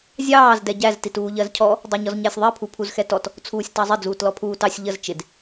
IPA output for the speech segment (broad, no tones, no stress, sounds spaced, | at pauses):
zʲ ɑː z d ɛ ɟ æ z t i t uː ʎ ɜ z cʰ ɔ | dˤ ɛ ɲ ɔ z ɲ æ sʲ ðˤ ɛ pʰ u pʰ u z x ɛ t ɔ t | t͡sʰ uː sʲ t ɑ zˤ ɪ d͡z uː t l ɔ pʰ uː t ɑ sʲ ʎ ə z t͡ʃ ɪ d